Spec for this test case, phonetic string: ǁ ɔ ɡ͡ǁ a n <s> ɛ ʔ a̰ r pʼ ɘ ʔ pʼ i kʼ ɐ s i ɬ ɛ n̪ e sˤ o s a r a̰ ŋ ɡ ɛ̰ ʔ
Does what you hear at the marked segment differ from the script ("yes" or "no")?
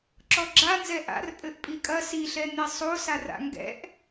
yes